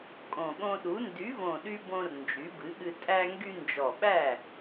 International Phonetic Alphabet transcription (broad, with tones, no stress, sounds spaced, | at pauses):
kʼ õ˨˩ ɠ õ˧ ɗ u˩˥ n d y˩˥ v õ˨˩ ɗ y˧ b õ˧ r n d͡ʒ y˩˥ b ɨ˩˥ ɠ ɨ˧ tʼ æ˧ ŋ ɡ y˧ n d͡ʒ ɔ˨˩ ɓ æ˥˩